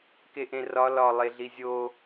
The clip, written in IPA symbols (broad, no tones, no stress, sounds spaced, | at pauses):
k e ʔ ẽ r ɒ l ɒ lˠ e ɮ i zʲ o